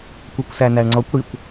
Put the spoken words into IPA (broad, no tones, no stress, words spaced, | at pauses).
kʷɛkʷsænæɳŋ͡ǀɔkʷ ɽikʷ